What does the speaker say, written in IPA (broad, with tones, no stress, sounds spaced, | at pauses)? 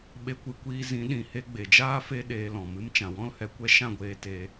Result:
ɓ e˧ kʷ ɨ˨˦ kʷ iː˧ z ĩ˨˦ ɗ ĩ˨ h e˦ ɡ͡b e˨ d͡ʒ aː˦ f e˦ ɗ eː˧ l ɔ̃˨ m ɨ˧ m t͡ʃ ã˨ w ɔ̃˦ l h ɛ˧ kʷ ɛ˦ ʃ ã˦˨ ɡʷ eː˧ t e˧